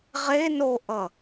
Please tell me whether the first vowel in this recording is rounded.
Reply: no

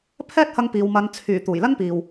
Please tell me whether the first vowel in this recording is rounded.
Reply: no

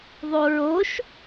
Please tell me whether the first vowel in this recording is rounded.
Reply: yes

